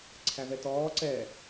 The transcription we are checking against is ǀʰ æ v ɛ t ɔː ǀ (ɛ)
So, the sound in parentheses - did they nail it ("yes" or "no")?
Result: yes